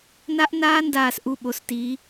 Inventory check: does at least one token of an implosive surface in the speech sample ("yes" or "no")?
yes